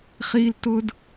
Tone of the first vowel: high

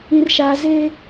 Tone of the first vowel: high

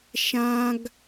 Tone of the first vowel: high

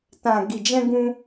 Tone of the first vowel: low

